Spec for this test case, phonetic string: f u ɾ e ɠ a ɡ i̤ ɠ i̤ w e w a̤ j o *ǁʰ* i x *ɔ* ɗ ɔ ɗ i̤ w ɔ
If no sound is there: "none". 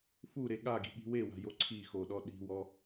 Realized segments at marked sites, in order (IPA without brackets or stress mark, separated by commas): ǀʰ, o